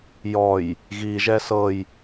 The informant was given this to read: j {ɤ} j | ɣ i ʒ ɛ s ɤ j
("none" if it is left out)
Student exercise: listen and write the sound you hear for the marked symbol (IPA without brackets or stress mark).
ɔ